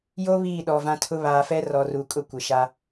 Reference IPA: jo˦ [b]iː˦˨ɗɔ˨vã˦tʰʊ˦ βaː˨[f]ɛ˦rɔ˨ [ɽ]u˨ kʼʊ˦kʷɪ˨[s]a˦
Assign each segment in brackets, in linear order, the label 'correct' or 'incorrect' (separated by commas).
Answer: incorrect, correct, incorrect, incorrect